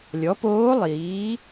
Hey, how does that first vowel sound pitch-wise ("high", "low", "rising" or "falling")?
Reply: rising